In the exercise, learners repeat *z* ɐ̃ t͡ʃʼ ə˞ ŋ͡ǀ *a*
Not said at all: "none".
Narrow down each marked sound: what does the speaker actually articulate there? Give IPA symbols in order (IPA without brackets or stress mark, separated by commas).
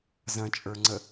z, ə